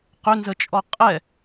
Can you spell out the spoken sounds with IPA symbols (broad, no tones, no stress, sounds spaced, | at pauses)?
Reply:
q ø n z ə t͡ʃʼ ɔ qʼ ɛ